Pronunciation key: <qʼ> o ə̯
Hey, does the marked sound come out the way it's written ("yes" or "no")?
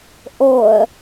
no